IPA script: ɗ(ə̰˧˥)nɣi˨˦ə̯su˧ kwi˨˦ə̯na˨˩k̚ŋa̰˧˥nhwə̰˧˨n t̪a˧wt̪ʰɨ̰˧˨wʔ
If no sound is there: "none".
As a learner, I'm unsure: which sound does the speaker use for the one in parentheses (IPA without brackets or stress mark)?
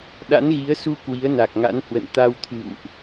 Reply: a̰˧˥